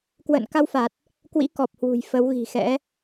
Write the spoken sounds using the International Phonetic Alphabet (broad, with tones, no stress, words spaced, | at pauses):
kwə̰ː˧˨n ka˧wfa˨˩t̚ | kwḭ˧˥kɔ˨˩p̚hwṳ˨˩j fə˨˦wɣi̤˨˩xɛ̰˧˥